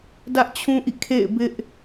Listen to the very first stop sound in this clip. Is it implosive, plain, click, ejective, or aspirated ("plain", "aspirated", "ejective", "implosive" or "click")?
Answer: plain